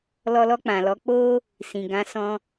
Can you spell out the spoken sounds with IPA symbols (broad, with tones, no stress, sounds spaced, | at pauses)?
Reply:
l ɔ˧ l ɔ˧ k͡p ã˨ l ɔ˨˦ k͡p o˦ | s ĩ˨ ɡ ã˨˦ s ɔ̃˧